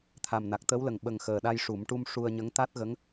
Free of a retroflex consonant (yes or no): no